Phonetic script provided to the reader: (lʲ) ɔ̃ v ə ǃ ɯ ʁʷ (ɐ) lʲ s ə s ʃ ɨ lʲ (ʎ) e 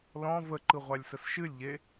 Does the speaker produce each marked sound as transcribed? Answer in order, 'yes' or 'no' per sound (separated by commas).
no, no, yes